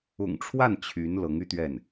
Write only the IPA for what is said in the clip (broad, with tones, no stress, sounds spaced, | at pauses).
ʊ̰˨˩ ŋ ʈ͡ʂʰ w a˥˩ n t͡ɕʰ y˧˥ n l ɤ˧˥ ŋ y˥ t̪ ɥ ɛ˥˩ n